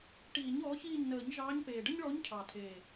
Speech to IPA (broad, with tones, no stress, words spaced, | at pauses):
ʈiː˨˩˦ɲɔː˩˥çiː˦˨ɲnəː˨˩˦ɲ ʒɑː˧˥ɲpeː˨˩ ɖə˥ɲɭɔ˧˥ɲcʰɑ˨˩tʰeː˨˩